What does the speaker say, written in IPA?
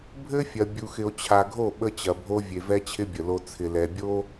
bʱɘ˦fʲɐ˨ bʲu˨xɪ˨o̯t͡ɕʰa˨ɡʱo˦˨ ɓə˦t͡ɕɐ˨bʱo˦ vʲe˨vɛ˦t͡ɕʰɪ˦ bʲə˨lo˦ t͡sʰɪ˨lɛ˨bʲo˦

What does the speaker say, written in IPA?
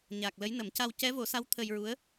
ɲa˨˩k̚ lə˧˥jnə˨˩˦mca˧w cɛ˧˥vo˨˩˦sa˧˥w t̪ʰə˧jɹu˧˥ə̯

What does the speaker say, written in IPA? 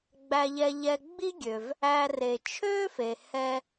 ɡ͡bæ˨ʎɛ˨ʎɛ˨ ɡ͡bi˥ɡʲø˩v | æ˨re˩t͡ʃʰø˦fe˩ hɛ˦

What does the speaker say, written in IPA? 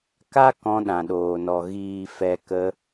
ka˦ kɔ̃˧ɗã˨ɗoː˨nɔ˨ ɣiː˨fɛ˨ kə˧

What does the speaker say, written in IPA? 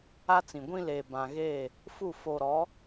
a˦t͡sĩ˨ ɡʷĩ˦leː˨ bã˦ ɣeː˦˨ | fu˦˨ fo˨ɾɔ˨˦

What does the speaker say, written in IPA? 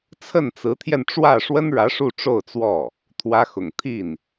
t͡sʰə˥˩nt͡sɹ̩˧˥t̪ʰjɛ˧n ʈ͡ʂwä˥˩ ʂwə˥nɻä˧˥ ʂu˥˧ʈ͡ʂo˥˧ʊ̯t͡swɔ˥˩ | t̪ʰwä˥xʊ̰˨˩ŋ t̪ʰi˥˩n

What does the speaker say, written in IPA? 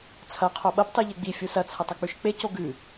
t͡sʰɐ qʰoɓɐp tˤiʎeɡ͡bi fʲusɐ t͡sʰɐtˤɐk͡pʉʃk͡pe coɡʉ

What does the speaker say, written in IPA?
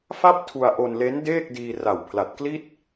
fa˥˩p̚ tʰu˧a̯ʔo˧nle˦˥n deː˥˩k̚diː˧ ra˨˩w pʰla˨˩t̚kli˥˩t̚

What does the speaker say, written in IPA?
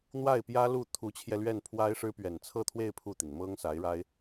n̪wa˥˩ɪ̯pjä˥lu˥˩ t̪ʰu˧˥t͡ɕʰjɛ˧ lɥɛ˥˩npʰwa˥ɪ̯ʂɻ̩˥ pɥɛ˨˩nt͡sʰɤ˥˧t̪ʰwe˥˧ɪ̯ pʰu˥˩t̪i˩n mɤ˥ŋsa˧˥ɪ̯ɻa˥ɪ̯

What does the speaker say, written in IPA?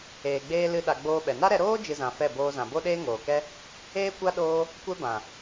eː˨ɡ͡beː˧ lɨ˧ ɗa˨ ɡ͡boː˧ɓɛ˨ na˦ɾɛ˧ ɾoː˦ d͡ʒɨ˧zã˨fɛ˦˨ boː˧zã˨ bo˦ɗeː˦ ŋoː˨kɛ˦ | eː˦kʷa˦ ɗoː˦ | kʷɛ˦ bã˨

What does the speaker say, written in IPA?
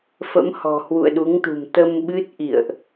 fə̰˧˥mhɔ̤˨˩ hwṵ˧˨ə̯ɗu˨˦ŋt̪ṳ˨˩m t̪ə˧m ɓɨ˦˥t̚ʔḭ˧˨ə̯ʔ

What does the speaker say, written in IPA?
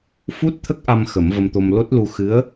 fu˦˥t̚t̪ʰə˦˥k̚ʔa˧m xə˨˩˦mvə˧mt̪o˧mlo˦˥t̚ lu˧ xɨ˧˥ə̯

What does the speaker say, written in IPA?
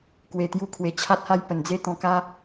kwe˧t̪ju˦kʰwe˧ t͡ɕʰa˦t̚ha˥˧j pə˨˩nd͡ze˥˧t̪ɔ̃˧ka˦

